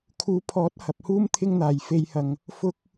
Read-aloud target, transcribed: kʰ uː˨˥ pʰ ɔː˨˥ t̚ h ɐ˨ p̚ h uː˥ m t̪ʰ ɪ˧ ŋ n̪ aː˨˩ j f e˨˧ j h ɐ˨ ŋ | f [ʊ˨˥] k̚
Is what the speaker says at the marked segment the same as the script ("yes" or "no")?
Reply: no